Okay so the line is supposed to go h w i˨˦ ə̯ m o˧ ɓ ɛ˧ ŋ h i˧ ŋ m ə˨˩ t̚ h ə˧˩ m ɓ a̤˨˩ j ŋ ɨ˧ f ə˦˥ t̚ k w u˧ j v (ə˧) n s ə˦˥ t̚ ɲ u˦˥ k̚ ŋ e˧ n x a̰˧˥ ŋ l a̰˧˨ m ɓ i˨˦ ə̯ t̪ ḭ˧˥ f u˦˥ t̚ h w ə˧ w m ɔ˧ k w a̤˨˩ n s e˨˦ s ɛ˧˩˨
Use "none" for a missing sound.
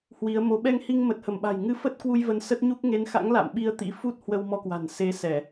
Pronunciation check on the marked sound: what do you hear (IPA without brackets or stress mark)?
ə˧